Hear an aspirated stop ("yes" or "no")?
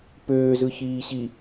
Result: no